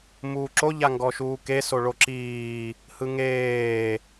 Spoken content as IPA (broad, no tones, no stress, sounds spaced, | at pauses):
m uː ǁ o ʎ a ŋ ɡ ɔ ʃ uː k e s o ɭ o ǁ iː | h ɯ ŋ eː